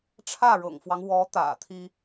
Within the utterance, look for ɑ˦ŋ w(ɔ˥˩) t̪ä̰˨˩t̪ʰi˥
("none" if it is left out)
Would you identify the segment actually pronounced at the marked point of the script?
ɔ˧˥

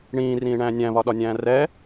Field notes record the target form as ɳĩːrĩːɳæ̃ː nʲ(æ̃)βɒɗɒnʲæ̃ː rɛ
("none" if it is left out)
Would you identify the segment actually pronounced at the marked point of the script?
æ̃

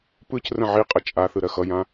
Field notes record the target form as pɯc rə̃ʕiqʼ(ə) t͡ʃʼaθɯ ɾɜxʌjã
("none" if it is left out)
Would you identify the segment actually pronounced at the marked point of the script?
ə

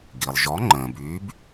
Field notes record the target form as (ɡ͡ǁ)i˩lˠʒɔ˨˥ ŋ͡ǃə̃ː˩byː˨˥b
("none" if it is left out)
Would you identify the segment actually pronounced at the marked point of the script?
ɡ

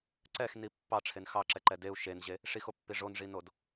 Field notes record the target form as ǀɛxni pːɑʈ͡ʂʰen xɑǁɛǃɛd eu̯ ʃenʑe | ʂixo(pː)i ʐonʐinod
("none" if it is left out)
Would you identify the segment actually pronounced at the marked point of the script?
pː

